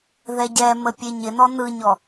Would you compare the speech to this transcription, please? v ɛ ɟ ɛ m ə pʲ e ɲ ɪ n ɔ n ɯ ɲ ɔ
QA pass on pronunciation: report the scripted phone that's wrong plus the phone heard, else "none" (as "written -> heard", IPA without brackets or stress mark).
v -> ð